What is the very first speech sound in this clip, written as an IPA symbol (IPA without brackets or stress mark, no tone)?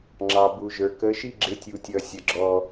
ŋ͡ǁ